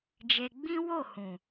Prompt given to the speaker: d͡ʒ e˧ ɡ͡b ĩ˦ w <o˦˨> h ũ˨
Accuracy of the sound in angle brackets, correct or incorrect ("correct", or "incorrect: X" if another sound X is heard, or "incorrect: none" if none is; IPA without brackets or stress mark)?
correct